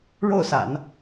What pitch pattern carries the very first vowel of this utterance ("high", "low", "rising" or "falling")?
falling